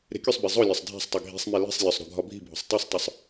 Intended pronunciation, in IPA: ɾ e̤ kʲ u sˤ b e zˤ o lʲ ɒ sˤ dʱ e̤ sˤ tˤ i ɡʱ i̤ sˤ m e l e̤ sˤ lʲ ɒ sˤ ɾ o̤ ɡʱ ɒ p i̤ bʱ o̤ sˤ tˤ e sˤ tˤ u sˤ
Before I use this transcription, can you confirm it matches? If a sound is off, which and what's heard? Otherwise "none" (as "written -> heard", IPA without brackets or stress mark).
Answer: p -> bʱ